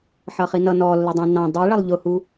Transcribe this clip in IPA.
ħʌχinʌ nɔlːədˤɛ̃ nɑ̃ dˤiɭʌlˠ ʎʊhu

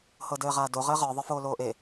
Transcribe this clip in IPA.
hɤdɘːʁaːdo ʁɘːʁə˞ ðˤə˞foːloːʔe

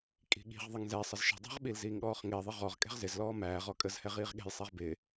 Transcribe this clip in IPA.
kʼi̤ɠi̤ʁðˤəŋ zɛsˤəz ʃə̤ dˤɛ̤ʁɓil ziːŋɠɔːχŋɪːðˤi ʁɔʁ kʼɛ̤ʁzɪzlɔː mæːʁ ɔkʼəzhɛ ʁiːʁɠɛ̤jsˤɛʁ bɪː

